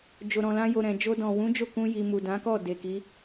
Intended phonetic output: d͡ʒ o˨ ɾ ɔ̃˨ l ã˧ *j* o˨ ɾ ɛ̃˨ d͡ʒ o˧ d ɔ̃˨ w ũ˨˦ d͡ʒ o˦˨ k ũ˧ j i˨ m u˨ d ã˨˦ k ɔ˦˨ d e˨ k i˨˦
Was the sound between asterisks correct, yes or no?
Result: yes